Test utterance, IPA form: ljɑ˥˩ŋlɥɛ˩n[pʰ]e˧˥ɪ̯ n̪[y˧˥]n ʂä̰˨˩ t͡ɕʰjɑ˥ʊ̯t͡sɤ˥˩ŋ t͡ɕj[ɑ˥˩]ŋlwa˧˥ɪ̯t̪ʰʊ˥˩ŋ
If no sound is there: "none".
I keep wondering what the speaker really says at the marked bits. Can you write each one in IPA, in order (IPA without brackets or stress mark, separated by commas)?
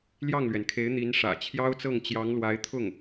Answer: kʰ, i˧˥, ɑ˧˥